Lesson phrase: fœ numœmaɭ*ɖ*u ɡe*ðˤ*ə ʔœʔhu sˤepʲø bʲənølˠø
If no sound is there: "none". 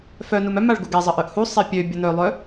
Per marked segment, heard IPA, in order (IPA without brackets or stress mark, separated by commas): ɡ, zˤ